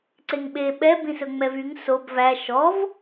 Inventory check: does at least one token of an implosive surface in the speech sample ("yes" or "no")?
yes